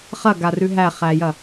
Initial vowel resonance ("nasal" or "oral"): oral